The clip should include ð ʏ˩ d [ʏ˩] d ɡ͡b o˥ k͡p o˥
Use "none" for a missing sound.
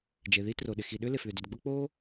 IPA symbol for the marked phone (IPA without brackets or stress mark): ʏ˩